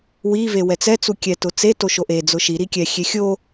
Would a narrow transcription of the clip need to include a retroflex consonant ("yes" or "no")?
no